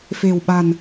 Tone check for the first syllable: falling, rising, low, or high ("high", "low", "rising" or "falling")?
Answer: low